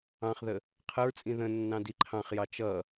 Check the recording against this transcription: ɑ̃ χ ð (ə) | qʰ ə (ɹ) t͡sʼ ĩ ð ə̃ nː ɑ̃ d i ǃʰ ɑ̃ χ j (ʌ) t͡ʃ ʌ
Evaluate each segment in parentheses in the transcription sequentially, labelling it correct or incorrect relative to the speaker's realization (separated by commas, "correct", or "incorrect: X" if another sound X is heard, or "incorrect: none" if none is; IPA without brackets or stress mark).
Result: correct, correct, incorrect: ɑ